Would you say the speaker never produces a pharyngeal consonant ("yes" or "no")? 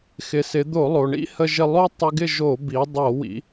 yes